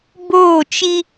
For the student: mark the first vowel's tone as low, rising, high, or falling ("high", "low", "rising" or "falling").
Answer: falling